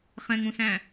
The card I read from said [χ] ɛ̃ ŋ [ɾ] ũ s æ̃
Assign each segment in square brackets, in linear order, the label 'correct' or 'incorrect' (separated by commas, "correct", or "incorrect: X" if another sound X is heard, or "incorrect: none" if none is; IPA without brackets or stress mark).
correct, correct